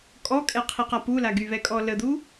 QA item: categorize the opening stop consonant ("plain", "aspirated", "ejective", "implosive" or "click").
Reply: ejective